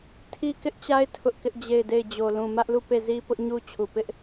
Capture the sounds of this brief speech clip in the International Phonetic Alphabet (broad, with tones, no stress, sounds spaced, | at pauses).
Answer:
tʰ i˦ k ɪ˦ ʔ t͡ɕ a˦ ɪ̯ tʰ ʊ˦ ʔ k ɪ˦ ʔ d͡ʑ e˦˨ ɪ̯ d e˦˨ ɪ̯ d͡ʑ o˨ l ũ˨ m ä˦ ʔ l u˦˨ p e˦˨ z i˦ p ʊ˦ ʔ ɲ u˦ t͡ɕʰ u˨ p ɪ˦ ʔ